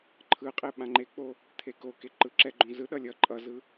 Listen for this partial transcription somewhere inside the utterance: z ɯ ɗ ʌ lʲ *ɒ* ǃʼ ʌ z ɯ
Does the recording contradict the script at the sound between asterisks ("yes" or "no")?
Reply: yes